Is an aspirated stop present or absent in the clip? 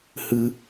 absent